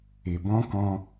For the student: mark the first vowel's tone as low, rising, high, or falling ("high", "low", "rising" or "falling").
low